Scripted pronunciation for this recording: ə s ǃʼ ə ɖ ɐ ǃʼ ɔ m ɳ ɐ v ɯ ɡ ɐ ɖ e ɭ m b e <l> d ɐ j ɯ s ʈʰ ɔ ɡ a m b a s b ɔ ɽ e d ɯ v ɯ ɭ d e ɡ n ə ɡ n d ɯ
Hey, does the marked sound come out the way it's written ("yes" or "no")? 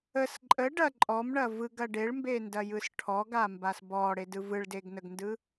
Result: no